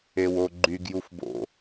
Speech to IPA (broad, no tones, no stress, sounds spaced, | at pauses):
e w o ɡ͡ǃ y ɡ j u f b o̰